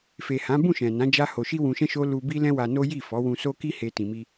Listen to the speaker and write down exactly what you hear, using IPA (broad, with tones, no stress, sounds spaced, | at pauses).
f e˨ h ã˨˦ b ũ˦˨ ʃ ɛ̃˨ n ã˨˦ d͡ʒ a˦ h o˧ ʃ i˦ w ũ˧ ʃ ɛ̃˦ ʃ o˦ l u˧ b i˦ l ɛ̃˦ w a˧ n o˦ j i˦˨ f ɔ˨˦ w ũ˧ s o˦ k i˦ h e˧ t ĩ˨ m i˧